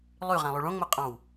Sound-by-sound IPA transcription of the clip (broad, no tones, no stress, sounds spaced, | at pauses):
lˠ y ʁ æ̃ lˠ y ɭ õ ŋ͡m o qʼ ɑ̃ w